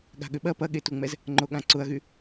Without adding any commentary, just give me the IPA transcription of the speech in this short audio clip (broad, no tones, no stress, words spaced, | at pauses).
ɠa̤ɠʏɓɐ pɐɠetuŋ͡mɛz | ŋ͡ǃoɠãǀʊɐ̯ɣy